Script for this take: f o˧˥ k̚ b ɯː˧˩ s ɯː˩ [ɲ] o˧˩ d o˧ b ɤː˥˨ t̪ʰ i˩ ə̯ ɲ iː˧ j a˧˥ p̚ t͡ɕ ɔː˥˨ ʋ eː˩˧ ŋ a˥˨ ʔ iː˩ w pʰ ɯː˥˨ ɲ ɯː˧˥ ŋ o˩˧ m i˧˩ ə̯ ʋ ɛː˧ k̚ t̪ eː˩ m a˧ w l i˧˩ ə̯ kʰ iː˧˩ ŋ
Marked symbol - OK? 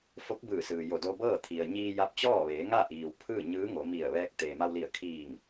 no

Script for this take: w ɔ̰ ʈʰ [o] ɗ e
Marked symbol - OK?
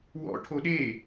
yes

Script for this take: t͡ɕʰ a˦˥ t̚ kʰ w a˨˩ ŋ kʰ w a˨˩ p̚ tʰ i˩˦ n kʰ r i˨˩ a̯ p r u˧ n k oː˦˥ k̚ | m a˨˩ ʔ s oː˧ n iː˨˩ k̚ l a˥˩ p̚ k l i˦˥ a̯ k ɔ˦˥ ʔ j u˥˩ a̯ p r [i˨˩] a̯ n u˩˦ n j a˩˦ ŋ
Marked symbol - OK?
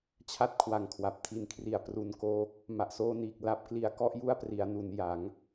no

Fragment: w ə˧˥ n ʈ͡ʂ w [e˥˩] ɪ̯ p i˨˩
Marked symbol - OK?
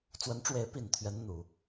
no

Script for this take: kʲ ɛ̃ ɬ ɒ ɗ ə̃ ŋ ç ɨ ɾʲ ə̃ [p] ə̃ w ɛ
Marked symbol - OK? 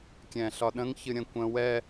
no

